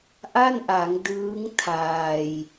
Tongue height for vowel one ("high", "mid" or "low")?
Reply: low